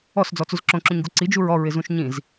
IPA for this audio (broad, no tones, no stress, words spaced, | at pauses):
ɔsd͡zɔt͡suz ǁõǁũɲɡo ǀid͡ʒuɹ ɔɹɪzũʃ ɲĩz